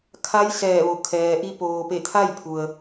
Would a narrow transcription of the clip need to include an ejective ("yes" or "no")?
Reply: no